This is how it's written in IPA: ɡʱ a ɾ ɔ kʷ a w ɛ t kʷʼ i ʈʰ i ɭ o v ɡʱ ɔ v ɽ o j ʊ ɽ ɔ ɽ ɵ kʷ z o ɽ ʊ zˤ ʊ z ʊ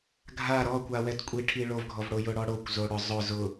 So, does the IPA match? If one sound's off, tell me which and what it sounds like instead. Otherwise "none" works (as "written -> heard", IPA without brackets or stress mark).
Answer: ɵ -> o